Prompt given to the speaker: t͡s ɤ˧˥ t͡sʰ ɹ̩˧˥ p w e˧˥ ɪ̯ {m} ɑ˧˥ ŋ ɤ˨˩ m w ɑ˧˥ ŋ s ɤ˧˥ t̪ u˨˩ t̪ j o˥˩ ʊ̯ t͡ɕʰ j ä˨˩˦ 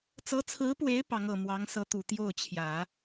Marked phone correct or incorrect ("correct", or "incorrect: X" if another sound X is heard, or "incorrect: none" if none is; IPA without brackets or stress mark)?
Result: incorrect: p